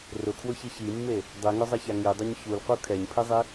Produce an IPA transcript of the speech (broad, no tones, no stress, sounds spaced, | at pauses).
r ʊ kʰ w ʊ ç i ç i mː e | dˤ i ŋ ʊ zˤ ɛ ç a ŋ i dˤ ʊ ɲ ç u l q u kʰ ɛ ɲ pʰ i zˤ i